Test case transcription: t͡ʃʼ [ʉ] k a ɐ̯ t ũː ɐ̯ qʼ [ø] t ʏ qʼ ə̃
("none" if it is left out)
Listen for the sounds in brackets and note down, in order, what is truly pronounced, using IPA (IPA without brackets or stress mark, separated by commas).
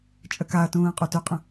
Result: ə, u